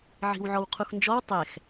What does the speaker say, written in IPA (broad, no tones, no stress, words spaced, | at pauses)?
ʕi̤wʕɔwqʰuxnd͡ʒɔw tˤɛx